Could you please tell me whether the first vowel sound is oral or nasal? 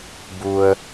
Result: oral